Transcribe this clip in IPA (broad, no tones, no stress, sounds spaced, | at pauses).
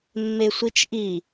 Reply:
mː e sʷ i t͡ʃ ʔ i